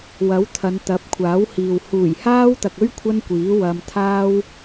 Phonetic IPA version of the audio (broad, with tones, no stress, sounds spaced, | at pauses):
w ɐ˨˥ w t̪ʰ ɐ˨˧ n t̪ ɐ˨˥ p̚ kʷʰ aː˨˥ w h iː˨ w h uː˨˩ j h aː˥ w t̪ ɐ˨ k̚ ɵ˥ ɥ kʷʰ ɐ˥ n kʷ iː˨˥ w ɐ˧ m t̪ʰ aː˥ w